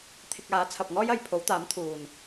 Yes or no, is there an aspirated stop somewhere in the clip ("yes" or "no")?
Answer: yes